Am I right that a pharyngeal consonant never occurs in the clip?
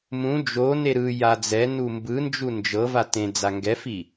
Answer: yes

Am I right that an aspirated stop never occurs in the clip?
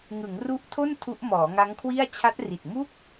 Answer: no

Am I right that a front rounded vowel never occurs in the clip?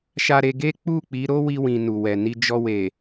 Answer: yes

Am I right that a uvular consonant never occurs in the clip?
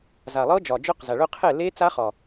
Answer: no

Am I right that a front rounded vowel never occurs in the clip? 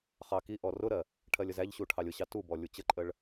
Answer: yes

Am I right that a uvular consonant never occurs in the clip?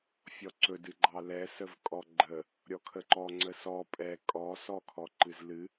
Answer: yes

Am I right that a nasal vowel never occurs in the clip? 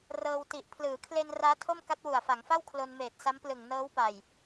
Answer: yes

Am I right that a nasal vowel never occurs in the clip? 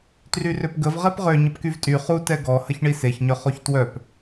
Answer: yes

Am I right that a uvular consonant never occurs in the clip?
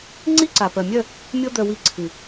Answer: yes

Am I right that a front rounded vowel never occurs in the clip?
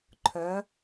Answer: no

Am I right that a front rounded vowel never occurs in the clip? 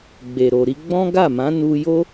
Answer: yes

